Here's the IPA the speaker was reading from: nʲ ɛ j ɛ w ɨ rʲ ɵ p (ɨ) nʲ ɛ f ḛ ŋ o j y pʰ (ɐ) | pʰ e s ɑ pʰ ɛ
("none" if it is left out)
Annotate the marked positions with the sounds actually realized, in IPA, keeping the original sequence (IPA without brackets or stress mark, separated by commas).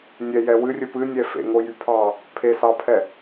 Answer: ɨ, ɑ